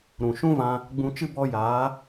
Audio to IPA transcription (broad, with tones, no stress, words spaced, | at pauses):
ɾũ˨ ʃũ˦vã˧ | ɡ͡bũ˧t͡ʃɨ˦ bɔ˧jaː˨˦